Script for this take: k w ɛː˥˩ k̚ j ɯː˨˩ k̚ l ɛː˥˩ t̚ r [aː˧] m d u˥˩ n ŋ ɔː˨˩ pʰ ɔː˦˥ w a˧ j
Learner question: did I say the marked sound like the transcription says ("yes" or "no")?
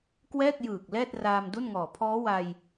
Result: yes